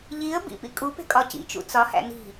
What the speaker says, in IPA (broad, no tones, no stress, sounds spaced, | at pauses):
ʎ i ə̯ b ḭ p ḭ kʼ u p e̤ kʼ ɒ c ḭ t͡ʃ ṵ t͡s ɒ h æ̰ n i̤